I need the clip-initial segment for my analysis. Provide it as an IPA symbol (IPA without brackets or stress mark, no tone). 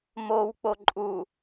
m